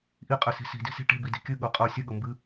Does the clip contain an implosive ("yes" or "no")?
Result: yes